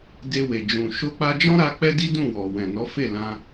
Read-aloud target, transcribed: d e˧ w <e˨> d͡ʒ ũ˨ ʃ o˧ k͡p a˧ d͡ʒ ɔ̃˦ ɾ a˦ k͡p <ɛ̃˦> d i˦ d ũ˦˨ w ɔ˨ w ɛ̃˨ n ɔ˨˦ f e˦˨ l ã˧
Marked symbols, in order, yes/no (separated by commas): yes, no